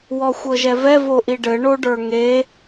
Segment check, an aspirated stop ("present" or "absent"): absent